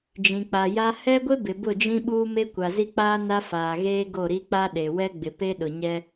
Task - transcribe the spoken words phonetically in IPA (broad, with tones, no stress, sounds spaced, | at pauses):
d͡ʒ ĩ˨ k͡p a˨ j a˦ h ɛ˦ ɡʷ ɪ˦ b ɪ˨ b ʊ˦˨ d͡ʒ ĩ˦ ɓ uː˦ m e˦ kʷ a˨ z i˦ k͡p aː˦ n a˦ f aː˨ ɣ eː˦ ɡ o˦˨ ɾ i˦ k͡p a˦ ɗ e˨ w ɛ˦ ɡ͡b ɪ˨ p e˦ ɗ ʊ˨ ɲ ɛ˦